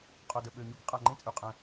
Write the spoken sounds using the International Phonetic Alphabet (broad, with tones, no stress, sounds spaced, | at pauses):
qʼ o˨ d ə˨ ɓ ø˨ ɲ u˦ k qʼ a˨ ŋ͡ǃ ẽ˦ t͡sʼ y˨ qʼ ɛ̃˧